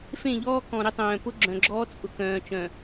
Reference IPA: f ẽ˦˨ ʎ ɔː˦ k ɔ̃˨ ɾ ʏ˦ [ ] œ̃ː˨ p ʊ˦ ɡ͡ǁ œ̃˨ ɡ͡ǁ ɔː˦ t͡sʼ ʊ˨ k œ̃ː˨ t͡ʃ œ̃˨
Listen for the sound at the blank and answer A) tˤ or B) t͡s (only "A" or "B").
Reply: A